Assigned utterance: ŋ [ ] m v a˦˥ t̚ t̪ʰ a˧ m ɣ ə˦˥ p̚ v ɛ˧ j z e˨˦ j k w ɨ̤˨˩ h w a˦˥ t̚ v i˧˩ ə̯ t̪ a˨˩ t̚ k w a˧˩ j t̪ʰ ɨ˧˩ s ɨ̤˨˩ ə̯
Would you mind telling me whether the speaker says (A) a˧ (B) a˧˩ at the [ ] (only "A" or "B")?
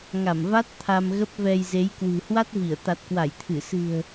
B